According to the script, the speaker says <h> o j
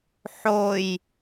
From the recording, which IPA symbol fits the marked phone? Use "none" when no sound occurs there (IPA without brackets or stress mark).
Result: ħ